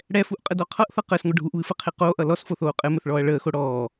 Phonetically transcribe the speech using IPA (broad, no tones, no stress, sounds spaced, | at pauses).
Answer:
ɽ ɛ f u ʔ qʼ ə d ɔ qʰ ʌ ʔ θ ʌ q əː s ŋʷ ʌ ɖʱ u ʔ β ɨ f ə qʰ e q oː ʔ ʌ l ɔ s f o θ oː qʼ ɘ m ɘ θ ɭ ɔː ɐ̯ ɭ əː x o ɽ ɔː